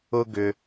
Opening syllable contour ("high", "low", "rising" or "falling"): high